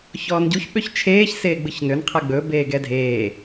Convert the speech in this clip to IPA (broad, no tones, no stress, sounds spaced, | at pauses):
ç ɔː n ɟ u ç ɓ ø ç t͡ʃʰ eː ç s eː ɡ͡b ɯ ç n ø n qʰ ɛ ɡ͡b ɵ b eː ɡ ɛ dʱ eː